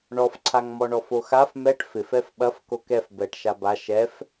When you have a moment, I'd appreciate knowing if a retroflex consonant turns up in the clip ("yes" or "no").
yes